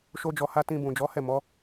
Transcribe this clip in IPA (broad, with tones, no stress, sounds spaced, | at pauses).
ʃ o˦ d͡ʒ ɔ˧ h a˦ t ĩ˧ b ũ˨ d͡ʒ ɔ˨˦ h ɛ˦˨ m ɔ˨˦